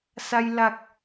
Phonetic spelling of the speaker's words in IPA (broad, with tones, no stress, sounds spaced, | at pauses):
s a˧ j l a˨˩ k̚